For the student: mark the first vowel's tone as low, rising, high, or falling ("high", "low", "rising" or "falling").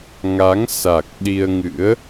rising